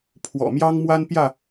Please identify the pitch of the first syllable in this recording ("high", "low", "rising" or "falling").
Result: low